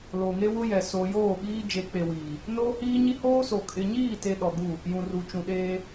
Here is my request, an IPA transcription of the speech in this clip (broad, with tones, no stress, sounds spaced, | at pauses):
l o˨ ŋ e˦ w ʊ˦ j ɛ˨ s o˨ j oː˦˨ ɓ iː˦ d͡ʒ e˨˦ k͡p e˨ w iː˨ | n oː˦ h iː˦ ɲ i˦ h oː˦ s o˨ kʼ ɪ˨ ɲ iː˦˨ t e˨ ɗ ɔ˨ ɡ u˦˨ | j ũ˨ r u˨ t͡ʃ ũ˨ ɗ eː˦